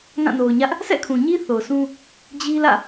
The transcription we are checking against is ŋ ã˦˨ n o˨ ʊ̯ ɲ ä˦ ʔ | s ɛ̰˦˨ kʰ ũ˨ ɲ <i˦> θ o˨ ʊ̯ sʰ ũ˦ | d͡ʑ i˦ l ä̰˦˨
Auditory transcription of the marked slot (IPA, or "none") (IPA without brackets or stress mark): i˦